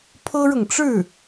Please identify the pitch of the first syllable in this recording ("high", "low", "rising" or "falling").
high